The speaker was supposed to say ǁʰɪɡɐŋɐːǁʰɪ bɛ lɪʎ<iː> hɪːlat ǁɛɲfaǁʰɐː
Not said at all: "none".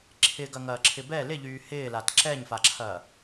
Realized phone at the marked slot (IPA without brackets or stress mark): yː